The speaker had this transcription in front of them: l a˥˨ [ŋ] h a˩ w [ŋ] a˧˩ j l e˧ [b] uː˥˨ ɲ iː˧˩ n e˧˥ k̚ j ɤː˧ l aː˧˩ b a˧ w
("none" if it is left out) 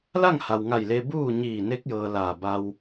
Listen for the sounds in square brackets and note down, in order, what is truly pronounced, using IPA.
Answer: ŋ, ŋ, b

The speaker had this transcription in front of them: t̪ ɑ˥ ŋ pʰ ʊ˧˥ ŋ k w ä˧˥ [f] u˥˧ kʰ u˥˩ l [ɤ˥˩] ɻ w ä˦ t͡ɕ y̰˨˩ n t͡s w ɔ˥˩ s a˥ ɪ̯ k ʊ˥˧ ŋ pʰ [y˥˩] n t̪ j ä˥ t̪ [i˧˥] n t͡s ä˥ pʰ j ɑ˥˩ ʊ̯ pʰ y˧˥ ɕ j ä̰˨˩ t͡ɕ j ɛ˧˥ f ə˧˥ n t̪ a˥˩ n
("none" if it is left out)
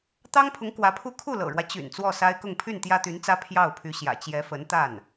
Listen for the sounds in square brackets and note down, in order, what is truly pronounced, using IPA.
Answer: pʰ, ɤ̰˨˩, y˥˩, y˧˥

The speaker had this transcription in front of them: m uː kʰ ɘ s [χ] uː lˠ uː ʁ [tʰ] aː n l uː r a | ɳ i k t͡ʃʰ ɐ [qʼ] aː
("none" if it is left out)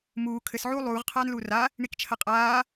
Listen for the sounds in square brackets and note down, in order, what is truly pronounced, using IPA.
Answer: ʕ, qʰ, qʼ

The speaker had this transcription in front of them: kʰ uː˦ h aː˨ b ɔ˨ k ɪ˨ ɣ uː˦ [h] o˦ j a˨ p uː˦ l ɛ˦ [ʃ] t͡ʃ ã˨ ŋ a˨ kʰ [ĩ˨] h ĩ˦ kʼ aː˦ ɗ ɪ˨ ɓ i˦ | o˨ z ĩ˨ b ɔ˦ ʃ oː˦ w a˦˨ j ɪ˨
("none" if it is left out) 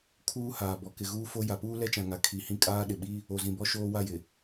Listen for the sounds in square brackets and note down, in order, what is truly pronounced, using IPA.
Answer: f, none, i˨

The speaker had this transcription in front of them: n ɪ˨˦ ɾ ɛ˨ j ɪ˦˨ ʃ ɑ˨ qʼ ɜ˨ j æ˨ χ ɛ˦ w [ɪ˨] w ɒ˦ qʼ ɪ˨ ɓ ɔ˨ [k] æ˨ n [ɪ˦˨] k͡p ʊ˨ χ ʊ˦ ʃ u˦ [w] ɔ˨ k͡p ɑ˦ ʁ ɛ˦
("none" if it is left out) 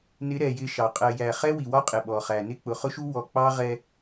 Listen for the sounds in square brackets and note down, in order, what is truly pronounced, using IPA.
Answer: i˨, χ, ɪ˦˨, w

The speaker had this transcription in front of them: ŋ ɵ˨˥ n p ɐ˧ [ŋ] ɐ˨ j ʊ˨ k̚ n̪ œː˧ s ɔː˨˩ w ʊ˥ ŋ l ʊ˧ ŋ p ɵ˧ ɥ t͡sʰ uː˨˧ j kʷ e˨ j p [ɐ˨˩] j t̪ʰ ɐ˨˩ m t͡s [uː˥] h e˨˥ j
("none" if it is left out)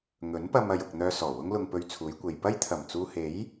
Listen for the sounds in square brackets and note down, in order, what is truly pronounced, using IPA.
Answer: m, ɐ˥, uː˧

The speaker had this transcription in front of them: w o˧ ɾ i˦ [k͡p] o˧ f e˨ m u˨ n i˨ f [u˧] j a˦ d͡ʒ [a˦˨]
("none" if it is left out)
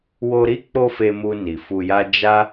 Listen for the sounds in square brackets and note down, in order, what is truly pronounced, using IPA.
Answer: k͡p, u˧, a˦

